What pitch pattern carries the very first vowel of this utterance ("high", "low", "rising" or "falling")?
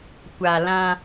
low